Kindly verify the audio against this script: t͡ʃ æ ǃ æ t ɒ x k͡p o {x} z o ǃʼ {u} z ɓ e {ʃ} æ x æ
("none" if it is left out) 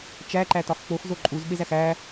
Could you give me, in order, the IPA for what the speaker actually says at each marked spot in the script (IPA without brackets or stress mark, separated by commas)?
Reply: x, u, z